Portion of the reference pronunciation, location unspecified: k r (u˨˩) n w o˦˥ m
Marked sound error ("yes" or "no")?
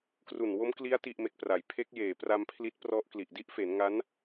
no